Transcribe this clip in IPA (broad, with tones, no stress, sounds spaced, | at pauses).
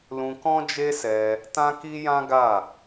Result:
l ũ˧ k ɔ̃˦ d͡ʒ e˦ s ɛ˧ | t ã˦ k i˦ j ã˦ ɡ a˦˨